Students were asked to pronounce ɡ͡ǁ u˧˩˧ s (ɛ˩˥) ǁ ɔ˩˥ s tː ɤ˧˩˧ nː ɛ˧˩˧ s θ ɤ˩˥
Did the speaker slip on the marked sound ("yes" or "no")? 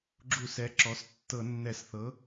no